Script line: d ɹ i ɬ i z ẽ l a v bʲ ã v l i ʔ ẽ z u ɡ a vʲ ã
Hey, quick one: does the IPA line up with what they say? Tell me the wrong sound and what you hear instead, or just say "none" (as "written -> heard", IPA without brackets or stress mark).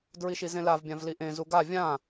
ɬ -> ʃ